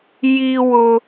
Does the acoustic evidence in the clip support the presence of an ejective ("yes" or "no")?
no